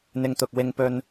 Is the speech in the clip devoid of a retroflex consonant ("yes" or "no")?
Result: yes